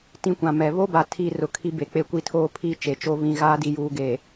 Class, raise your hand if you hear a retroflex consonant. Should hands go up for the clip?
no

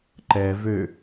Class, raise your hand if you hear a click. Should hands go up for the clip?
yes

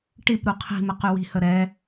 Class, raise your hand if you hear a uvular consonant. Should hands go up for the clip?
yes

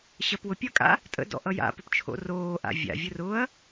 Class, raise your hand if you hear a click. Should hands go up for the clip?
no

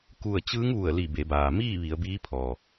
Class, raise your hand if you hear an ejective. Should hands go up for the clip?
no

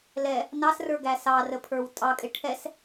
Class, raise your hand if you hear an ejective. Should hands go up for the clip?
yes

